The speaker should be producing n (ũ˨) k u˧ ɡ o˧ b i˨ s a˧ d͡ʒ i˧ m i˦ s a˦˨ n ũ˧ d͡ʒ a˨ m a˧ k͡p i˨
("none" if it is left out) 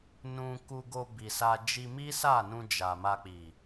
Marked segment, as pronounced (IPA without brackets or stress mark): ũ˧